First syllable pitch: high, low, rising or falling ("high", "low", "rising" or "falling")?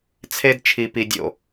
high